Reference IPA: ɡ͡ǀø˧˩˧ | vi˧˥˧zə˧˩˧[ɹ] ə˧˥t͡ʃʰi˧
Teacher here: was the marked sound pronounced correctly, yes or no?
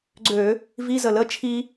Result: no